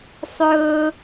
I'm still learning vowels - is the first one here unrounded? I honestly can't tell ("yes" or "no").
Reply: no